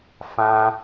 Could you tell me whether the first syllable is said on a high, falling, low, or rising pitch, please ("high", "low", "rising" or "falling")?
high